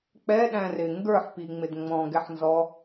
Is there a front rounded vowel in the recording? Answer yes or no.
no